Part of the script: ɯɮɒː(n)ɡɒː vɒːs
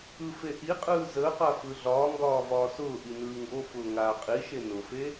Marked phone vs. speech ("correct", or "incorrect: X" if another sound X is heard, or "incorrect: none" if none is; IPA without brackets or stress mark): incorrect: ŋ